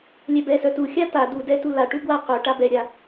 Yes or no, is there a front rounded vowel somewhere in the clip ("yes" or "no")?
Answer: yes